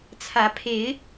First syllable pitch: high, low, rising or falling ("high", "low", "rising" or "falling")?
rising